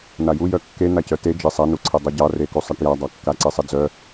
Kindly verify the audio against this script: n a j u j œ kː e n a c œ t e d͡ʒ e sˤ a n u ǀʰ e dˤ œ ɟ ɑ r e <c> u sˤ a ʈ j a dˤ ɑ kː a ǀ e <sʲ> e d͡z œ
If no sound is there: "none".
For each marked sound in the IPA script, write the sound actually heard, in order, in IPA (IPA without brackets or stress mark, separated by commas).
k, sˤ